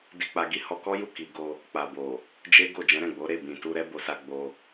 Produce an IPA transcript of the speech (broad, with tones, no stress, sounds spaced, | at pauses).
d i˧ k͡p a˧ ɡ i˦ h ɔ˧ k ɔ˦ j u˦˨ k i˨ ɡ o˧ | k͡p a˨ b o˨ | d͡ʒ e˦ ɡ o˦˨ d͡ʒ ɛ̃˨˦ ɾ ɛ̃˦˨ ɡ͡b o˨˦ ɾ e˦˨ b ĩ˨ t u˧ ɾ ɛ˦ b o˧ s a˧ ɡ͡b o˧